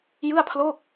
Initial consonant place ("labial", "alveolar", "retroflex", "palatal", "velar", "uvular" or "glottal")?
palatal